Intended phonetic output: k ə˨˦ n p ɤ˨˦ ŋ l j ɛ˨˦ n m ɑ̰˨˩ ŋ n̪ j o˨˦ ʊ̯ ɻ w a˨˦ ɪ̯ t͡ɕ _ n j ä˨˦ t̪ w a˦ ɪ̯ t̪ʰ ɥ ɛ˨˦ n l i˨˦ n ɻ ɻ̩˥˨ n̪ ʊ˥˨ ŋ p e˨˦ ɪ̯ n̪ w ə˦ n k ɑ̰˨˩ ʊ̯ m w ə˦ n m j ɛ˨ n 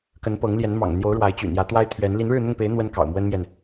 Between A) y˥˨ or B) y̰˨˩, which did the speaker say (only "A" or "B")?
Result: B